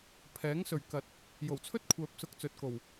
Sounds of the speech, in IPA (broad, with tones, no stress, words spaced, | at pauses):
pʰɛː˨˥ŋsɵ˨ɥ kɐ˨t̚ | jo˨˩wt͡sʰɵ˥t̚kʷʰœː˨p̚ sʊ˧k̚ t͡sɵ˨t̚ko˨˩w